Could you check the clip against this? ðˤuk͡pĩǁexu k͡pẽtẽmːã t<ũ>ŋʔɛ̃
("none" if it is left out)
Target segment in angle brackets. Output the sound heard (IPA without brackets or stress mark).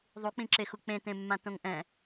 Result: õ